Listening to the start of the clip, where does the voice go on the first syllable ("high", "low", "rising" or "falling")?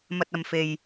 low